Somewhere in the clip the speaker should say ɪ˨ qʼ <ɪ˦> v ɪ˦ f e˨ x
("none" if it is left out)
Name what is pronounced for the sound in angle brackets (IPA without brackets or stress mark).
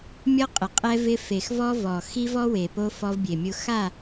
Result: ɛ˦